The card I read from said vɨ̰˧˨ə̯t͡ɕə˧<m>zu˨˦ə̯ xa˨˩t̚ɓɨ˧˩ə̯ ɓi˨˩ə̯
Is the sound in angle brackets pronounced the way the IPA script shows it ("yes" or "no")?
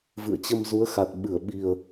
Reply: yes